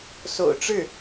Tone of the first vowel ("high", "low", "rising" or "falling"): low